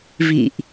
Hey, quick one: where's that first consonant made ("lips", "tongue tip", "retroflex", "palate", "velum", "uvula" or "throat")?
lips